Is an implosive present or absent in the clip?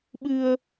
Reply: present